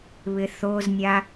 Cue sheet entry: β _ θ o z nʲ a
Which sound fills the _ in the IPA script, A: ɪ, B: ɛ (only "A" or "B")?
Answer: A